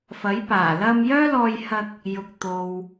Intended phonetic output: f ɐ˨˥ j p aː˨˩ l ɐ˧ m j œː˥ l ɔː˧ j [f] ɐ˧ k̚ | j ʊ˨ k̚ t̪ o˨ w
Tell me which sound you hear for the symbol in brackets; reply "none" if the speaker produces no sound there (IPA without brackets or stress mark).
h